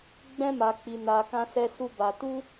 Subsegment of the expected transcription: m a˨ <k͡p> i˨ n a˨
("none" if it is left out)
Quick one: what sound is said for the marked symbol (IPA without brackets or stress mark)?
k͡p